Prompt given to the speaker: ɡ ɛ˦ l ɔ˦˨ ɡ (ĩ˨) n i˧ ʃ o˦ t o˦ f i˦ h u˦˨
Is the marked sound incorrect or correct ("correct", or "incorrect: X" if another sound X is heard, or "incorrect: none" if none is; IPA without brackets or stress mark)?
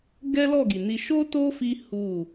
incorrect: i˨